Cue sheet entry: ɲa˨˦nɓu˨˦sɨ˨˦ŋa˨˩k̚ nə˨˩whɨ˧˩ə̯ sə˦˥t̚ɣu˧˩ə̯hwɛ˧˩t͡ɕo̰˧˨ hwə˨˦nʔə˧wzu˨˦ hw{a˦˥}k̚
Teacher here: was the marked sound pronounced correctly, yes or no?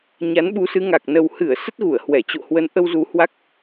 yes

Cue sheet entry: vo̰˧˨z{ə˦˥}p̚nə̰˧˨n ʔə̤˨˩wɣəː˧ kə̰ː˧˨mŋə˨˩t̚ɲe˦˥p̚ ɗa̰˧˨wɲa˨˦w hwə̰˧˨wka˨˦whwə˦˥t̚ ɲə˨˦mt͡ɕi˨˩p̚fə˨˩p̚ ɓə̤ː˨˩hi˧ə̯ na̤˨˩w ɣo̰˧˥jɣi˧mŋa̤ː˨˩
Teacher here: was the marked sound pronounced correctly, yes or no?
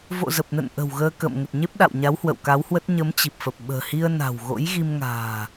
no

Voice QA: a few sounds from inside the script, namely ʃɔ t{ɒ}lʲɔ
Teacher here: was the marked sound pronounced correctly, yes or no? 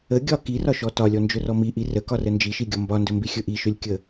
yes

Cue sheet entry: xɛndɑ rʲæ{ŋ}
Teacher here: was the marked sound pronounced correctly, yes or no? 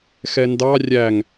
yes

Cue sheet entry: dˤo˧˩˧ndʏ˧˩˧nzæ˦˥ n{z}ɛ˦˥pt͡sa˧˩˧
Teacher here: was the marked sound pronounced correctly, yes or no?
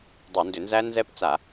yes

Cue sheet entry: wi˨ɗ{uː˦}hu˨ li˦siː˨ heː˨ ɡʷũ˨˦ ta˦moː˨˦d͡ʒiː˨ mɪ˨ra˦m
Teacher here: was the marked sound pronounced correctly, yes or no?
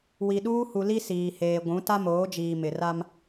yes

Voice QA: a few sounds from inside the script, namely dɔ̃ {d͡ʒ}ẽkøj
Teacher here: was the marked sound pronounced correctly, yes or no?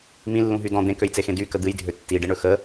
no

